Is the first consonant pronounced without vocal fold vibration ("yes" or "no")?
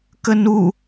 yes